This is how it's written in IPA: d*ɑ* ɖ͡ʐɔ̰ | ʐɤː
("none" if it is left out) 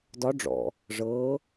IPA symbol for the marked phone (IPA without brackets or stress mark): ɒ